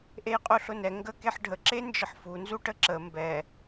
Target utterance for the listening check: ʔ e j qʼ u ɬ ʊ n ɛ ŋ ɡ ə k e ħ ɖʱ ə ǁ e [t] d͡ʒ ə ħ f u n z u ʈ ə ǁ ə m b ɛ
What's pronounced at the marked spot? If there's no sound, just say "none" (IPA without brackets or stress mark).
n